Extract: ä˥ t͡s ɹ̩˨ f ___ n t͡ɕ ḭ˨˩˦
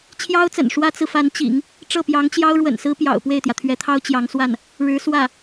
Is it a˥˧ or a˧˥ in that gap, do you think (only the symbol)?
a˧˥